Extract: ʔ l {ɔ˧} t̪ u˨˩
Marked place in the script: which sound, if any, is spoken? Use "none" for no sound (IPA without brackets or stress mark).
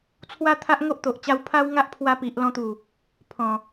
ɔ̃˧